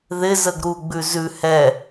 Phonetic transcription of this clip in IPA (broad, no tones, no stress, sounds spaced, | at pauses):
ð ɪ z ə ɡ ɾ u ɡ͡b ʉ z ʉ h ɛ